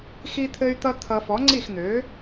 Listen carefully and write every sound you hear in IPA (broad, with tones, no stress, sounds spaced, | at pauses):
x i˦ t̪ʰ ɘ˦ y̯ t̪ ʌ˦ t̪ʰ ʌ˨ f ɔ˩˥ ŋ͡ǀ i˥˩ x n̪ ø˩˥